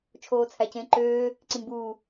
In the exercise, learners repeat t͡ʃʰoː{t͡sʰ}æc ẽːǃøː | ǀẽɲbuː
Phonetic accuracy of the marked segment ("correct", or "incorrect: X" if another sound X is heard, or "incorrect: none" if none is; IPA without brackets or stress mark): correct